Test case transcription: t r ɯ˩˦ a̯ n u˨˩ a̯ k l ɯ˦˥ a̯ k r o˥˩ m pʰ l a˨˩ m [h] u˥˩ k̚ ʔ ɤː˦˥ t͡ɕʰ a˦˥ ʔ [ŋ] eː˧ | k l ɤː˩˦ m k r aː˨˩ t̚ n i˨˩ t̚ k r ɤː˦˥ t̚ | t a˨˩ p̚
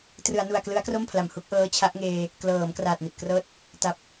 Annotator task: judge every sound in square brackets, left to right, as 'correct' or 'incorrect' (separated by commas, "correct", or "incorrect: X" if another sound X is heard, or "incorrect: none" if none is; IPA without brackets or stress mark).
correct, correct